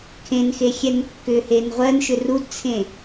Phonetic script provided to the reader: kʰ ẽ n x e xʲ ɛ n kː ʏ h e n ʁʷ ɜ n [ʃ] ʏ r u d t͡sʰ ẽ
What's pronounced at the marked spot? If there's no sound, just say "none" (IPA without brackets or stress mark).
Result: ʃ